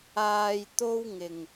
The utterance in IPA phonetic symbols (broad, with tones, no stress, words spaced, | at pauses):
aː˧jt̪o˥wŋɪ˨ŋ